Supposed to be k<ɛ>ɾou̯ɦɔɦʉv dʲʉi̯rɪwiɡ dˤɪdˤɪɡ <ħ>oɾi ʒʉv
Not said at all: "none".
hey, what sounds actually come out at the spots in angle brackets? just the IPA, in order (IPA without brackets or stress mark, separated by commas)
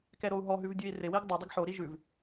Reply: ɛ, ħ